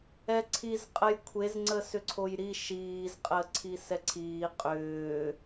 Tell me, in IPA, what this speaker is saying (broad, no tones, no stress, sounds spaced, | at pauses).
ɛ ǀʰ i z qʼ ə j kʷʰ e z ŋ͡ǀ ə s ʏ ǀʰ o j ɾ i ʃ iː z qʼ əː ǀʰ i s ɛ ǀʰ iː qʼ ʏː